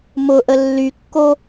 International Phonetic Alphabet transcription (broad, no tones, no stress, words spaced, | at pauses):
mʊʔə lːykːo